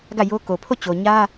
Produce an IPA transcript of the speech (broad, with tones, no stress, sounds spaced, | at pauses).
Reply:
ɡ ä˦˨ j o˦ k o˨ pʰ o˦˨ t͡ɕ o˨ ɲ ä˦